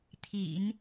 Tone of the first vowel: low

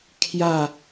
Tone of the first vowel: falling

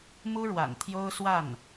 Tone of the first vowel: high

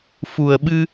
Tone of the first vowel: low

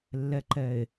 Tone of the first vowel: low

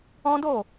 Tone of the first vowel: high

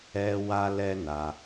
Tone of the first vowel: high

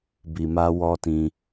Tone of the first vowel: low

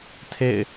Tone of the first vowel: falling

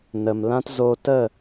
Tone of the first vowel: low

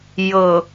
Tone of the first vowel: low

